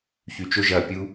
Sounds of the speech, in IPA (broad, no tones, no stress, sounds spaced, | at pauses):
ç y t͡ʃ ʊ ʒ ɐ pʲ u